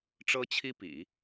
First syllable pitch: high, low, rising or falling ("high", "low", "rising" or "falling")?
high